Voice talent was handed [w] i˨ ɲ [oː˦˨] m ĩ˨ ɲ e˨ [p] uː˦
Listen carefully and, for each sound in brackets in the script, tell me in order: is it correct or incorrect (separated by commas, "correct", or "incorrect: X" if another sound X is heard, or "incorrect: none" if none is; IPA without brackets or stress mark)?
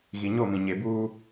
incorrect: ɣ, incorrect: o˦˨, incorrect: b